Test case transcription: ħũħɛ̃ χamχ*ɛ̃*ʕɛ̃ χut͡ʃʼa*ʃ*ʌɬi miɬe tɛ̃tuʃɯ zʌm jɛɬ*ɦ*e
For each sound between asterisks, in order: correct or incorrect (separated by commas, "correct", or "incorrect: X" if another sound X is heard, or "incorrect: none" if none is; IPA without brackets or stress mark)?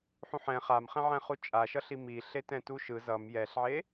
correct, correct, incorrect: ʕ